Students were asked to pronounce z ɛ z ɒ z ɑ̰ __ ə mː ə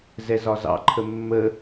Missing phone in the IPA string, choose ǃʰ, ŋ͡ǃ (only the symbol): ǃʰ